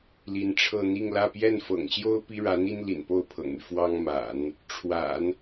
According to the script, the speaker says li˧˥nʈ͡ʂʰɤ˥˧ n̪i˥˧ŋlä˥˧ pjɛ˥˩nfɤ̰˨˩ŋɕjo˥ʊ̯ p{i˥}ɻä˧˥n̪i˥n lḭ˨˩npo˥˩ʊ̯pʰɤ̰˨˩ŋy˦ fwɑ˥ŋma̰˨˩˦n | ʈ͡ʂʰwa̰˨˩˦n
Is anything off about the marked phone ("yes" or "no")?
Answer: no